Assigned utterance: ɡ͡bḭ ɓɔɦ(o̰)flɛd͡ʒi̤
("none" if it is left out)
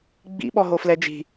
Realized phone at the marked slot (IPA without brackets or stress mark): o